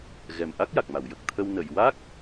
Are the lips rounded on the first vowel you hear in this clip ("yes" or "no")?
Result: no